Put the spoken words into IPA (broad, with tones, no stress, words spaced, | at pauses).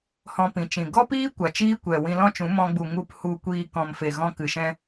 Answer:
hɔ̃˧pĩ˨t͡ʃĩ˨ ɡɔ˦piː˦ kʷa˨t͡ʃiː˦kʷɛ˨ wĩ˧lɔ̃˦t͡ʃũ˨˦ mɔ̃˧ɡ͡bu˨ ŋu˧p hu˧kʷiː˧ kɔ̃˨mfe˨ɣɔ̃˧ kɨ˨ʃɛ̃˧